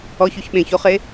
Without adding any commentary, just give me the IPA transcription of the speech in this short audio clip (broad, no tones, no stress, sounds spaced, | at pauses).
ɔ ç o ç ɓ ẽ ç o χ e